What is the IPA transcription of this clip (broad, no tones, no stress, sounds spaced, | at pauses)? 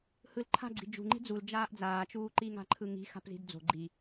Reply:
h ɯ l ǃʰ a̤ ɡ͡ǀ i̤ d͡ʒ ṳ ŋ͡ǃ i̤ d͡z u l d͡ʒ aː ʔ d͡z aː t͡ʃ uː ǃ i ŋ a̤ ǃʰ ɯ ŋ i̤ x a̤ p z i̤ d d͡z o̤ ɡ͡ǃ i